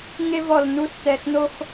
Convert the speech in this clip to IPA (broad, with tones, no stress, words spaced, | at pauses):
ŋe˦vɔ˧˩l nu˦st̪ɛ˧˩x no˦x